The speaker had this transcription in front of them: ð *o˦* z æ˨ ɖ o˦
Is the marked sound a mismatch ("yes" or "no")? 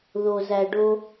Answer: yes